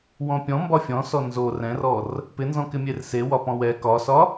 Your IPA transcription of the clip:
wɔ̃pʲɔ̃ mbɒfʲɔ̃sɔ nzo rɛ̃rɔr | pɪnzɔ̃ kɪmʲerse wɒpɔ̃wɛ kɒsɒ

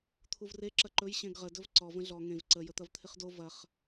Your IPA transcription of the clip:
t̪ʰuvre ǁɐǃɵj ɕẽɡʁə dɵvǀɔ və̃ɮɔ ŋẽv ǀə jət̪ɐvt̪ʰɪχdo vɐχ

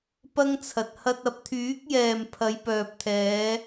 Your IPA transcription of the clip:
pɐ˥ŋt͡sʰɐ˨t̚ hɐ˧t̚ɐ˧p̚t̪ʰyː˨˥k̚jɛː˨m pʰɐ˨˧jpœː˨p̚t̪ʰɛː˨˧

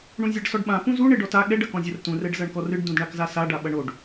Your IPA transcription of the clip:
ɳũzʲaɖsɔɖɓã pũzu ɳeɖɔta ɠɛɖ ɐkɔ̃zʲɐrtũr ɛɖzɐɳkɔrɨɖ dũdɳakzasa ɖaɓɐɳoɖ

